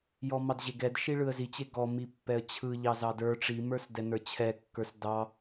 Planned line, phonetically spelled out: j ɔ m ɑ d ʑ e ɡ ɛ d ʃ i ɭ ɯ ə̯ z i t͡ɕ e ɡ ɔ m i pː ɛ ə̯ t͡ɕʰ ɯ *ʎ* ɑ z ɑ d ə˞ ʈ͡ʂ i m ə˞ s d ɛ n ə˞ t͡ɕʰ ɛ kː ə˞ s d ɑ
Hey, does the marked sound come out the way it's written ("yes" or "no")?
yes